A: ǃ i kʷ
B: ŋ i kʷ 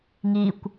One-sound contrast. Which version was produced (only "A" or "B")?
B